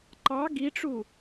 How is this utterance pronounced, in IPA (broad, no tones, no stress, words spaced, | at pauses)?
ǃɑ ɡiʈ͡ʂu